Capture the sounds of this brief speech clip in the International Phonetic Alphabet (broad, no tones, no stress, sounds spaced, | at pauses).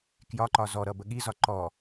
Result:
k j ɒ ǃ ɒ z ɔ ɾ ʌ b ə ɠ i z ɒ ǃ ɔ